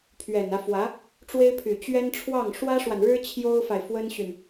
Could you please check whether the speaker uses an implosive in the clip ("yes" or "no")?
no